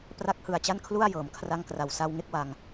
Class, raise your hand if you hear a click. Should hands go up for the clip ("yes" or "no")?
no